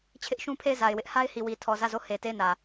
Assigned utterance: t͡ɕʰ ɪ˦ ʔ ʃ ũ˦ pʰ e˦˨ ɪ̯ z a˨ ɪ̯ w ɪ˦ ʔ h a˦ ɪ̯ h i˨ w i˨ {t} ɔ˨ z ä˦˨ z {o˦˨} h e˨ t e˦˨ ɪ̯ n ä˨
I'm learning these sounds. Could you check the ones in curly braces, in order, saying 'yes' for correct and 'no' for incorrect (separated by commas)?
no, yes